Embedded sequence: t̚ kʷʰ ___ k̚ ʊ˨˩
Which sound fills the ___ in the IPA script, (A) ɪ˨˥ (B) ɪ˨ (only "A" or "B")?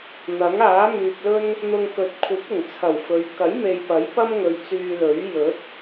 A